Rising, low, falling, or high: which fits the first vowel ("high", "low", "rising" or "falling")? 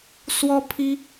high